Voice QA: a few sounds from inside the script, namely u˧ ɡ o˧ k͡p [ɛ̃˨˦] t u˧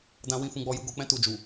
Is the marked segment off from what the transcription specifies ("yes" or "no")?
yes